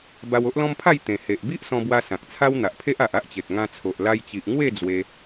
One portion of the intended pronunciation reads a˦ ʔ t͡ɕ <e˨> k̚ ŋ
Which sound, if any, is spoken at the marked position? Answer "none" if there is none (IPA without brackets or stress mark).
e˨